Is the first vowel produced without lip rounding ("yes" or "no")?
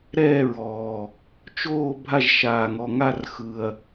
yes